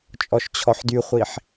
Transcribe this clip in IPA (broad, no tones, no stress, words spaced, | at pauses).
t͡ʃʼɔʃt͡ɕʰɔħdyχʷiħ